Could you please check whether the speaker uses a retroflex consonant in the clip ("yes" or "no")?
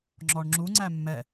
yes